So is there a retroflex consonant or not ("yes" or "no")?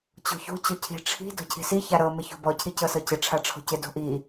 yes